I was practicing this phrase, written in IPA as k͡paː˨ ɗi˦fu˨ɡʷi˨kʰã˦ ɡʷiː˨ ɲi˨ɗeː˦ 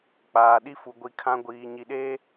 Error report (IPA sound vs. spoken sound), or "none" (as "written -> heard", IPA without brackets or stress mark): none